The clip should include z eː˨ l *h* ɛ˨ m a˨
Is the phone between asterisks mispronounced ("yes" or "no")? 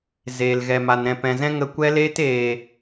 yes